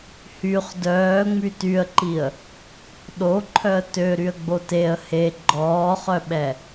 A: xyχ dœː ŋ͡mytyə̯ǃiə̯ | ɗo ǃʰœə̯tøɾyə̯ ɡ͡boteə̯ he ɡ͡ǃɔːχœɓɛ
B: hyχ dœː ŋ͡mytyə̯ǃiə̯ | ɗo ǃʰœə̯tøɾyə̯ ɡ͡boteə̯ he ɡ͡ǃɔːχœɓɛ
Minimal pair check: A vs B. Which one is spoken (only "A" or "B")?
B